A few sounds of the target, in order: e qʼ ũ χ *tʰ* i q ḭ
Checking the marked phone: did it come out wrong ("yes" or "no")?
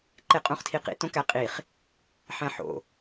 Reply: no